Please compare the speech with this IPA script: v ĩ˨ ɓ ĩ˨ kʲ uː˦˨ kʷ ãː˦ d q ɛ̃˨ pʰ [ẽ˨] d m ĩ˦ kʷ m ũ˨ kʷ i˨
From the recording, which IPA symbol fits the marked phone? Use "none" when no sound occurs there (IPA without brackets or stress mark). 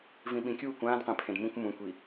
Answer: ẽ˨